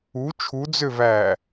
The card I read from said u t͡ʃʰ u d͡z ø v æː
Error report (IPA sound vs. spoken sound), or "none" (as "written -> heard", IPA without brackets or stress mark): none